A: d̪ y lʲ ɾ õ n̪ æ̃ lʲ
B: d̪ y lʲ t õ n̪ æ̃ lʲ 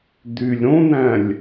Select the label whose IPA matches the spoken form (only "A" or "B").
A